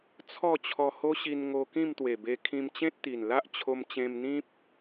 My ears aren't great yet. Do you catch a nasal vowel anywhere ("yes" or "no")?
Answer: yes